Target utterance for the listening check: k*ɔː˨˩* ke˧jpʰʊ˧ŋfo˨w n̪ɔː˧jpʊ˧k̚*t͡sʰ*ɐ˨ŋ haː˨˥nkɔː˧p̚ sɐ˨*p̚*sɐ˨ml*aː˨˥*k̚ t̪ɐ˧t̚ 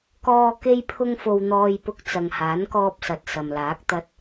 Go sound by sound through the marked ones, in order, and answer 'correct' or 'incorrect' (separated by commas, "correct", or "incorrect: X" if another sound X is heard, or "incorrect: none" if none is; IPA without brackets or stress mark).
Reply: incorrect: ɔː˧, incorrect: t͡s, incorrect: t̚, correct